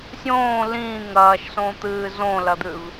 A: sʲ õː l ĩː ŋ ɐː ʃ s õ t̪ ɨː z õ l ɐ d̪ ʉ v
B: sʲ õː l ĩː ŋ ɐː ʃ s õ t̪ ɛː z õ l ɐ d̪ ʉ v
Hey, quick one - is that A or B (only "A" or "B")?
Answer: A